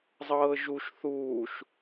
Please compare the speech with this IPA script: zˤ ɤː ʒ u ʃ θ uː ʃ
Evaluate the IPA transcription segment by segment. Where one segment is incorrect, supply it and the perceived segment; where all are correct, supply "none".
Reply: none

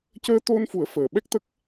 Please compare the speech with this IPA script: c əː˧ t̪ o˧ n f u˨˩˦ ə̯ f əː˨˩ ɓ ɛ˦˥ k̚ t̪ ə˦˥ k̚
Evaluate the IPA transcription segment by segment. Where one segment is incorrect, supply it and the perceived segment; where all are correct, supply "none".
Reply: none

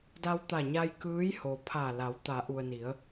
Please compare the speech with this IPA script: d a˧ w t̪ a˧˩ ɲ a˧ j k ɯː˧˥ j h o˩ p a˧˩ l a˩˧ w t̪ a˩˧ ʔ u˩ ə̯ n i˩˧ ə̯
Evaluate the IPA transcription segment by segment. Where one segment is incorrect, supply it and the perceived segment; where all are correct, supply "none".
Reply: p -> pʰ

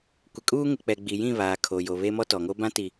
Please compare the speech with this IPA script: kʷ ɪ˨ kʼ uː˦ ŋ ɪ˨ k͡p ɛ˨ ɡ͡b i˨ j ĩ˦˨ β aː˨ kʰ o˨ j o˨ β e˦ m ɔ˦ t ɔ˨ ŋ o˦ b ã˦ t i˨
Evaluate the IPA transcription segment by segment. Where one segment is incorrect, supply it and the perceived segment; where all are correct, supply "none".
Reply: none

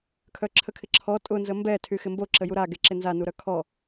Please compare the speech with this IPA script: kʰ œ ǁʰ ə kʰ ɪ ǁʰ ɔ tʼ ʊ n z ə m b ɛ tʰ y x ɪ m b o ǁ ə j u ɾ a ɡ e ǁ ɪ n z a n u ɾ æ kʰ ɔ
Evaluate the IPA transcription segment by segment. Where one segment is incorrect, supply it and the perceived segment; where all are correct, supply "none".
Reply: æ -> œ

